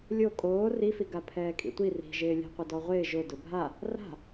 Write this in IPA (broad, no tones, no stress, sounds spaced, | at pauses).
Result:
lʲ o kʼ oː r i f i ɡ a pʰ ɛː kʼ ḭ tʷ i r i̤ ʒ ɪː lʲ a̤ qʷ ɪ d ɔ ʁʷ ɪː ʒ ʊ d ʊ bʱ a | r a̤